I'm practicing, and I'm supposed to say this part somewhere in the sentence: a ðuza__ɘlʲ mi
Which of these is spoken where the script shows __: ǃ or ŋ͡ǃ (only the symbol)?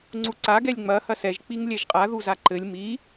ǃ